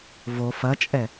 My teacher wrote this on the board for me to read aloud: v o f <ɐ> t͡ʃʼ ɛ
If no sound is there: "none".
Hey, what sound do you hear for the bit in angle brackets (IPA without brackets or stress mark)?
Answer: ɐ